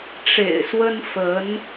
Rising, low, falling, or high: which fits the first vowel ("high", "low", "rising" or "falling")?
low